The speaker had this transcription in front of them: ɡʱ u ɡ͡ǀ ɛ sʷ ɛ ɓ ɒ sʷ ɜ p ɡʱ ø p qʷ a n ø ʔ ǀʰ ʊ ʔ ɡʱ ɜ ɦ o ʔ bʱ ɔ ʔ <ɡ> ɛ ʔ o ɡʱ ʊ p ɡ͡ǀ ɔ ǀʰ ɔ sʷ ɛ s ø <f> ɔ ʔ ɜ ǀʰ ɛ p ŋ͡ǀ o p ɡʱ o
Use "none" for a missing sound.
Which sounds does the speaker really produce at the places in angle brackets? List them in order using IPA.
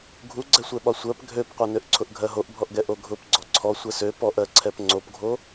ɡ, p

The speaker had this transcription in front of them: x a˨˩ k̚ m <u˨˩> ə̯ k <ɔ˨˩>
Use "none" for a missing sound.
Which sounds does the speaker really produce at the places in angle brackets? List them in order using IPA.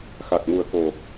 u˨˩, o˨˩

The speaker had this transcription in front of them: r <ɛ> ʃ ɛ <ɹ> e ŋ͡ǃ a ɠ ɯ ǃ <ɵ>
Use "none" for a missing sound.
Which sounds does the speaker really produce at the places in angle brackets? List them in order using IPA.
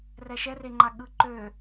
ɛ, r, ø

